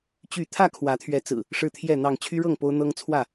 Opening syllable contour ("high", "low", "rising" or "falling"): falling